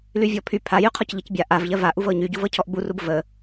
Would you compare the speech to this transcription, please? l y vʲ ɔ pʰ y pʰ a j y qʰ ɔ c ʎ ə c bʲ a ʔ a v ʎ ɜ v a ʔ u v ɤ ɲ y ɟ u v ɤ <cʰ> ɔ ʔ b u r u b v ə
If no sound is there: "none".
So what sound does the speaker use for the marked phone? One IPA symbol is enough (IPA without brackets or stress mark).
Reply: cʰ